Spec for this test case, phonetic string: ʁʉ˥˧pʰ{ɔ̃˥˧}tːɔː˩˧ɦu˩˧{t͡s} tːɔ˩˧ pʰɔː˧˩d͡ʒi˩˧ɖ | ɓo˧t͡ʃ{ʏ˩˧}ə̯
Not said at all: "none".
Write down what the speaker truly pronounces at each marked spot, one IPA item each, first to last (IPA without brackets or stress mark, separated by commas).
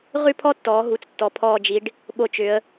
ɔ˥˧, t͡s, ʏ˩˧